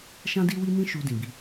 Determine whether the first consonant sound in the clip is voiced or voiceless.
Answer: voiceless